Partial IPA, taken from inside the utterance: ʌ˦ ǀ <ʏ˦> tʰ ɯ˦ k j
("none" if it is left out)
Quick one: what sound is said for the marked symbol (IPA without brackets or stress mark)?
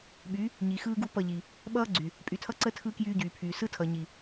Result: ə˦